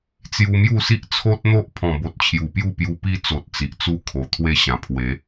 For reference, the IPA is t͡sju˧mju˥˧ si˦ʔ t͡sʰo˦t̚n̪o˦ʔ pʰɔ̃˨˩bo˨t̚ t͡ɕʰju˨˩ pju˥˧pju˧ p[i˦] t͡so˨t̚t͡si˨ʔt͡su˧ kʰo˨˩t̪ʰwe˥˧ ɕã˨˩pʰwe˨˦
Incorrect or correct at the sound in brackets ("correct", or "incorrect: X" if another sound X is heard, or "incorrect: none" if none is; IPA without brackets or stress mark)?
correct